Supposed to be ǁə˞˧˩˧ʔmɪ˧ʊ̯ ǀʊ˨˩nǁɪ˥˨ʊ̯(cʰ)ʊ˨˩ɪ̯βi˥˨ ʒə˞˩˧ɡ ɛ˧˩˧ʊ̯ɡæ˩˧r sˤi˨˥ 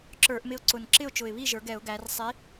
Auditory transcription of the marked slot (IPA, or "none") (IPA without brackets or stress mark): t͡ʃ